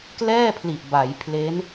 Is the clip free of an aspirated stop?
no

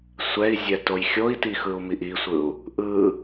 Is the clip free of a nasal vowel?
yes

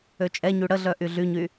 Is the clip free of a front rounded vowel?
no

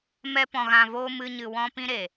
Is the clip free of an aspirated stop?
yes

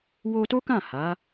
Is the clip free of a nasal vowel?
no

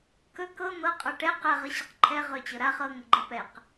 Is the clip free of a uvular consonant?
no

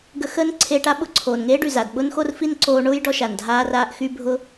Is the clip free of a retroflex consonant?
no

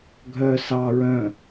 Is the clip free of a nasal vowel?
no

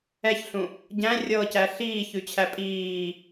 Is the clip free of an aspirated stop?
no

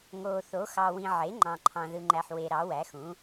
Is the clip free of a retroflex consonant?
yes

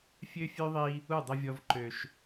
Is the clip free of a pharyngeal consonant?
yes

